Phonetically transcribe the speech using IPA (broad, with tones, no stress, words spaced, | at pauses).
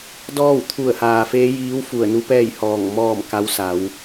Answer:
dɔː˥˨wt̪ʰu˧˩ə̯ haː˩feː˧˥jiː˧˥w fu˧˩ə̯nu˧˥pɛː˥˨jhɔː˧˩ŋ mɔː˥˨m ka˧˥wsa˩˧w